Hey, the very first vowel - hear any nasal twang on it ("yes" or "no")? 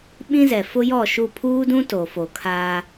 yes